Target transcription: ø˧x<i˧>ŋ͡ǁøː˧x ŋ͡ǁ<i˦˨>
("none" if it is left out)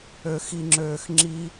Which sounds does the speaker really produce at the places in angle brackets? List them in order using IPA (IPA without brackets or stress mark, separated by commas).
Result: i˧, i˦